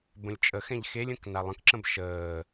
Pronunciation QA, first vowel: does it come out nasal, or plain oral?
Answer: nasal